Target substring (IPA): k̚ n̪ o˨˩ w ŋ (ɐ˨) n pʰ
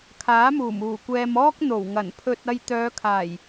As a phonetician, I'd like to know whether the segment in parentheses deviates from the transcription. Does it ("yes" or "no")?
yes